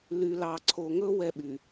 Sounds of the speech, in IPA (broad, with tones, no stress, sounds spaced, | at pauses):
l y˨ l ɑ˨ ǀʰ o˨ ŋ ɵ˦ w ɛ˦ ɓ y˨